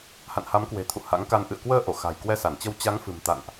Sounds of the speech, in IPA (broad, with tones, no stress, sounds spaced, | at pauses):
h a̰˧˨ n h a˨˦ m k w e̤˨˩ t̪ʰ ṵ˧˨ h a̰˧˥ ŋ k a˧ n ʔ ɨ̰˧˨ ə̯ k w əː˧ ʔ o˧˩ x a̤˨˩ j k w ɛ˧ s a˧˩ n t͡ɕ ə˧ w t͡ɕ a˨˦ ŋ f ɨ̤˨˩ m t̪ a̰˧˨ n ʔ